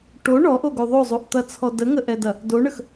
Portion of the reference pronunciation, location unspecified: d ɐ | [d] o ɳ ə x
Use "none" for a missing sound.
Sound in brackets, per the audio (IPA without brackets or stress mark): d